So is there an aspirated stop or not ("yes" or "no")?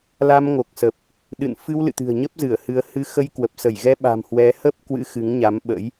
no